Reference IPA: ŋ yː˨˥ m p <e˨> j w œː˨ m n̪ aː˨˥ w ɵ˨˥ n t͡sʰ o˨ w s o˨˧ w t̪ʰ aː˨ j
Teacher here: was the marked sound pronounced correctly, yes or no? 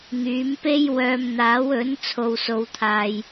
no